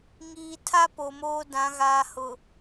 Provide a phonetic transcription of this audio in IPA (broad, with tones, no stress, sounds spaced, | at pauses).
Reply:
ŋ iː˨ tʰ a˦ p o˨ m oː˦ d ã˨˦ ɣ aː˨ h ʊ˨